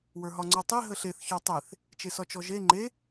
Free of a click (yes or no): no